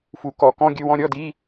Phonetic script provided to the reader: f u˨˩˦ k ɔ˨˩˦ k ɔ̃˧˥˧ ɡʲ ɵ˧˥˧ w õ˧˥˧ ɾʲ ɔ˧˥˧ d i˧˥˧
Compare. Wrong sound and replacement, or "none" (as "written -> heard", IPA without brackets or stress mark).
õ˧˥˧ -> ɔ̃˧˥˧